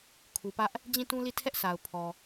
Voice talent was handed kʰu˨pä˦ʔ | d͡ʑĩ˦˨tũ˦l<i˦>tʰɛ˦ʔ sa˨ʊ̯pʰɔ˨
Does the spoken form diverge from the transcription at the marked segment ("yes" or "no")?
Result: yes